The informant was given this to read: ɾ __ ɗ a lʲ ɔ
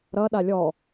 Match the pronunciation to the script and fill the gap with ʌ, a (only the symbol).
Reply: ʌ